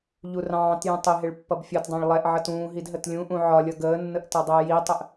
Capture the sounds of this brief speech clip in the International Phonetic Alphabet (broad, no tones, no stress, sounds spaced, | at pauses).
ʎ u r ɑ̃ː t j ũ tˤ ɪ ɦ ɪ ɭ pː ʌ b fʲ ɒ t dˤ ɑ̃ ɭ lˠ ɛ ʔ ʕ ʌ t ũː ɦ i d ɦ ə t lʲ ũ ʔ ũ ʕ ɒ lʲ ʌ ɡ əː nː ə ʔ t ʌ dˤ əː j i tˤ ə ʔ